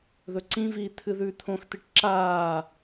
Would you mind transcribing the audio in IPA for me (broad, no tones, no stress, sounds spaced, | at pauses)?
ð ɵ ǀ ĩ v iː t̪ʰ ɨ ð ʉː t̪ʰ õ x t̪ i ʈ ǁ aː